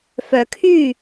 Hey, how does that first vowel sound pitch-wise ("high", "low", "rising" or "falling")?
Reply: low